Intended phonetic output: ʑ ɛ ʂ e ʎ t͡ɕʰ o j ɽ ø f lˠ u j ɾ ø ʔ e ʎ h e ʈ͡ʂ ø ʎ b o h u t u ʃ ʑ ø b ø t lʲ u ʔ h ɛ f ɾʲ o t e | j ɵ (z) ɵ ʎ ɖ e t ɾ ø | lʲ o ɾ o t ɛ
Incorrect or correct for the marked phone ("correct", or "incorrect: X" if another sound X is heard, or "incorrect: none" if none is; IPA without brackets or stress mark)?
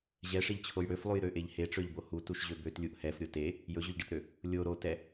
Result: incorrect: ʑ